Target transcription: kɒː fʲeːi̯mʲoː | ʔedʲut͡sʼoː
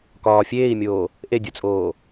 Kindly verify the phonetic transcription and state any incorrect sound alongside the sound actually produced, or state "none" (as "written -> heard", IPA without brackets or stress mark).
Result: none